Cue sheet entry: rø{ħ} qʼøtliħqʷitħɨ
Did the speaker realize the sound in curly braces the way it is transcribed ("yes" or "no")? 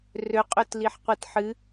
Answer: no